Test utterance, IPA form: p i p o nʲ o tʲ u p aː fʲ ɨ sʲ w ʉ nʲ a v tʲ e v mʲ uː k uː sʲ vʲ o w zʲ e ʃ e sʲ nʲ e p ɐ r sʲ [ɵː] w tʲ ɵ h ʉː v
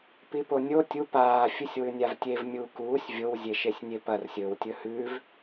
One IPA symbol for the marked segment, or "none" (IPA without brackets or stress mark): ɵː